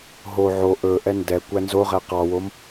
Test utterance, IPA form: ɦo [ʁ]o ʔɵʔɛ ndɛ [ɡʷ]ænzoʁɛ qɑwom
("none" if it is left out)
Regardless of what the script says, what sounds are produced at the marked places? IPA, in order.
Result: ʕ, kʷ

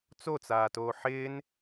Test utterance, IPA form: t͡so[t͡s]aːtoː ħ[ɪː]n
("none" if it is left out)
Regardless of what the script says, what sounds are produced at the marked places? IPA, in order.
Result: t͡s, ɪː

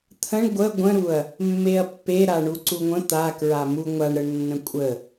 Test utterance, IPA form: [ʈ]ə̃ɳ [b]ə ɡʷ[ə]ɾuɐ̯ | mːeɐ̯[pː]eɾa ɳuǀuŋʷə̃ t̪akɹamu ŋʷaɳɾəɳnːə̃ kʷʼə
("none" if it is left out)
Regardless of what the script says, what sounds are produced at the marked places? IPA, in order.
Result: t̪ʰ, ɡʷ, ə̃, pː

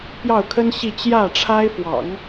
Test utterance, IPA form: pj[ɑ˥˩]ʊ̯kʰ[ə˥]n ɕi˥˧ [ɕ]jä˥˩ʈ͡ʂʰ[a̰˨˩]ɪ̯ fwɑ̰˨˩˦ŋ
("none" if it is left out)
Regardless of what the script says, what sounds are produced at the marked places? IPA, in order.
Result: ɑ˥˩, ə˥, t͡ɕ, a˥

